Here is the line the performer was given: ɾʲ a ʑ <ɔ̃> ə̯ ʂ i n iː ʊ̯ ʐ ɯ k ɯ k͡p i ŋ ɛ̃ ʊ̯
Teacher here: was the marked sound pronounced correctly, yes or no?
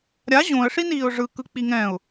no